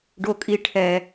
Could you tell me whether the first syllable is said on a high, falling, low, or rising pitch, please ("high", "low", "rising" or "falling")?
high